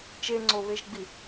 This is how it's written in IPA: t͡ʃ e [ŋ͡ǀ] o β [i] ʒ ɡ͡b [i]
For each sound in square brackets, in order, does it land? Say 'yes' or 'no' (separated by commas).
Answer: yes, no, yes